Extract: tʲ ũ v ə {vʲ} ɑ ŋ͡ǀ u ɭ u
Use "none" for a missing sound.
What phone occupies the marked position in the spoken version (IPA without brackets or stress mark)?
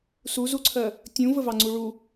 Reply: v